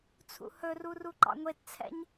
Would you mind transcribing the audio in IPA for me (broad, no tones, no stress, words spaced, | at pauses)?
t͡sʰṵhɵru ruǃɑ̰ŋʷett͡sʰɛ̰ɲ